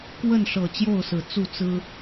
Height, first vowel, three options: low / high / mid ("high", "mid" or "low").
mid